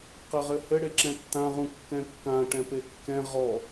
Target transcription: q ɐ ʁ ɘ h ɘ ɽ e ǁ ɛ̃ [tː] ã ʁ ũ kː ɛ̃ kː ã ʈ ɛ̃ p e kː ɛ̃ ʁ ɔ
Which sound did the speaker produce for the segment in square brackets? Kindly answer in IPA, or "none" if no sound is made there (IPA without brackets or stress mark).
tː